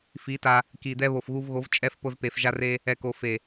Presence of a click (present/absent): absent